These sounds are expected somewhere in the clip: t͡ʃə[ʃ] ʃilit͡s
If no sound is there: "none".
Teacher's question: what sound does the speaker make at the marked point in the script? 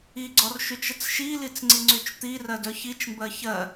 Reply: t͡s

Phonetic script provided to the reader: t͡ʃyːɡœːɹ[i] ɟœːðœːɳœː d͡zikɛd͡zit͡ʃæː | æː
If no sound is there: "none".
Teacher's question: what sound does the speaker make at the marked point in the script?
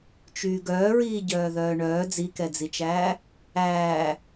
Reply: iː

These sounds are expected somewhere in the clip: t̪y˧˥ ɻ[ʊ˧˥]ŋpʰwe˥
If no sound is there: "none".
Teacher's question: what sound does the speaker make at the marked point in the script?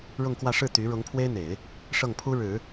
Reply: ʊ˧˥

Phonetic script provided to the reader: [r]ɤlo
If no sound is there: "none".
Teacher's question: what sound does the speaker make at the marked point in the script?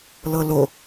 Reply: l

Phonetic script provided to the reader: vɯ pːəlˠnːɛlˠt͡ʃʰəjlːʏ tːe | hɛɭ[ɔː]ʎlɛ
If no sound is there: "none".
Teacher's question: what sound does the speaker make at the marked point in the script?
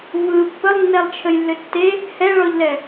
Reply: ɔ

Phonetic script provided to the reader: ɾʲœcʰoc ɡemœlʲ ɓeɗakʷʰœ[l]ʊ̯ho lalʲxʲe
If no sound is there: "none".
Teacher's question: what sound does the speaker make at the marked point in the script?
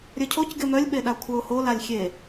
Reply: none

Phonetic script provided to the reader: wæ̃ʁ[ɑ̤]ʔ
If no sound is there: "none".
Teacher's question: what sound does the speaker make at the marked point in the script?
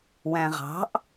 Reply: ɑ̤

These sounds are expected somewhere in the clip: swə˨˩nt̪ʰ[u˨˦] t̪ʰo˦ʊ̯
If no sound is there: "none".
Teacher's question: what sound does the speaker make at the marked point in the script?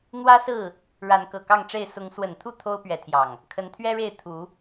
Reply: u˥˨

